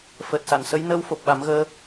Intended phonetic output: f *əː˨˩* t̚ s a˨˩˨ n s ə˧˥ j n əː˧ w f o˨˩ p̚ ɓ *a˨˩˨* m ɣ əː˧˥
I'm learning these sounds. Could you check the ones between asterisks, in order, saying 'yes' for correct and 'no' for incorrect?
yes, no

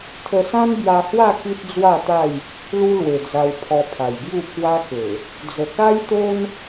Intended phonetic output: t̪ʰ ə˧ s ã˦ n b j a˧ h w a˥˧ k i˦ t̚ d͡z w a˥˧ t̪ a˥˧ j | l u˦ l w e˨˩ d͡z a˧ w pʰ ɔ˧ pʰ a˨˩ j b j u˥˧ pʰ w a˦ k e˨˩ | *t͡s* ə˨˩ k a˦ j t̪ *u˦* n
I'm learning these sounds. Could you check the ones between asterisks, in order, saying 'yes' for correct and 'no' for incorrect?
no, no

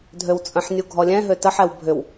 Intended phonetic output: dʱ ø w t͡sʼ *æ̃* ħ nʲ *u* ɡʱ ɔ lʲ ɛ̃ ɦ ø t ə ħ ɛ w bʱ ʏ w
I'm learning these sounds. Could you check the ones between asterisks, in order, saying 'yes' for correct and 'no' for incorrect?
no, yes

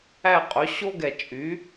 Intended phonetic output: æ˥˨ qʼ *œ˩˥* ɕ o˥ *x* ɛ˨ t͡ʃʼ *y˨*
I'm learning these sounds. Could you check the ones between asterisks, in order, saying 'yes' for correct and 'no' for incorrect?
no, no, no

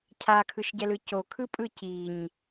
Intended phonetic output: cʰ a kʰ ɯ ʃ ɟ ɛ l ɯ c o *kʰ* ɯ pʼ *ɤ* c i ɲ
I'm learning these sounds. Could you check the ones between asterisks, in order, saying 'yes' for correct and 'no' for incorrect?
yes, no

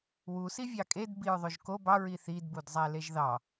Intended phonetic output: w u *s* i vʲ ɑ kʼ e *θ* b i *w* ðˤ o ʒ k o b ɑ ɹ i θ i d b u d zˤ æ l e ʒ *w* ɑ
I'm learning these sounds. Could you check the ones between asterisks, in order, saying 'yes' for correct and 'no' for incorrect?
yes, no, no, no

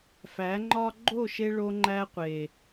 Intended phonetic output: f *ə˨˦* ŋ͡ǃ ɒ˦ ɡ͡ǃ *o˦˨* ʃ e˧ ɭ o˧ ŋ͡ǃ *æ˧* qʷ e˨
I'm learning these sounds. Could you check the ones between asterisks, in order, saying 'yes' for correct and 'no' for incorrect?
no, yes, yes

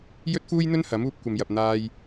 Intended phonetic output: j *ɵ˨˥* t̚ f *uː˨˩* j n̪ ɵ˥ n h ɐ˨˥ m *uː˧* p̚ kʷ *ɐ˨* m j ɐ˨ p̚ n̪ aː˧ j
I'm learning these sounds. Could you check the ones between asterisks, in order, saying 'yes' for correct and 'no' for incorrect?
no, no, yes, yes

